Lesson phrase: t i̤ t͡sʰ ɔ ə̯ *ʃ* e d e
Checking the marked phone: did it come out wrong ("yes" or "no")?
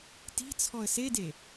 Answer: yes